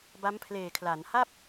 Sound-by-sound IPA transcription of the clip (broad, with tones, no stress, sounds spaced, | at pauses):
b a˦˥ m pʰ l eː˨˩ kʰ l a˩˦ n h a˥˩ p̚